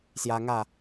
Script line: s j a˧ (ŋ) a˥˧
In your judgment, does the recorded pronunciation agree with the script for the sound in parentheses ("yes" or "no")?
yes